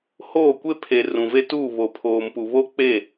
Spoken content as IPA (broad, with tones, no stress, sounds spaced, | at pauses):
h oː˦˨ kʷ e˦ pʰ e˨ r ũ˨ v e˦ t uː˦˨ β o˨ pʰ oː˨ m p u˨ β o˦ k͡p e˦˨